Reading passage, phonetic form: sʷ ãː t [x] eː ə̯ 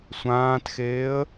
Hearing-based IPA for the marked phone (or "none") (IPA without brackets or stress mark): x